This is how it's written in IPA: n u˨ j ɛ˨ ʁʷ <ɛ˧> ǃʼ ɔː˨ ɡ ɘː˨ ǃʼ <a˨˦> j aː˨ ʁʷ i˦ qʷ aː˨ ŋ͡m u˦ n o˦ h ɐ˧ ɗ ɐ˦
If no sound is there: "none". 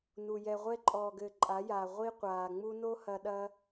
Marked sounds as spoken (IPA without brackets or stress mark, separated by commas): ɛ˧, a˨˦